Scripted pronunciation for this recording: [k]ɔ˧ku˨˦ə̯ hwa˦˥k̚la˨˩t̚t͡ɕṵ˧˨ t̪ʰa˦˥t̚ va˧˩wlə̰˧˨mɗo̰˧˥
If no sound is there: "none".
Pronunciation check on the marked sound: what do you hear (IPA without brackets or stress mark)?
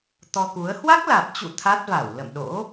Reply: t̪